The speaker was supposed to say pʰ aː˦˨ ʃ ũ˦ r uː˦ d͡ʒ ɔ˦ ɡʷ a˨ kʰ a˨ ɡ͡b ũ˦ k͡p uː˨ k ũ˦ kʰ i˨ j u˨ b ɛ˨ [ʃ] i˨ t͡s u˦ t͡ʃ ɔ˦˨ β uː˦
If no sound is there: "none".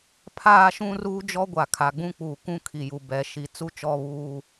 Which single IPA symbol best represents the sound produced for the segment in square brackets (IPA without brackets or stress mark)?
ʃ